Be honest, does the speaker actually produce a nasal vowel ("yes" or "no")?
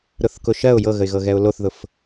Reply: no